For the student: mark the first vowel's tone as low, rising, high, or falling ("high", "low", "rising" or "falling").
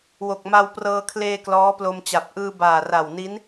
low